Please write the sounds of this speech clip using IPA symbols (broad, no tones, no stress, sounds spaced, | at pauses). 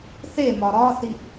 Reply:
θ e m ɒ ɾ ɒ θ i ʔ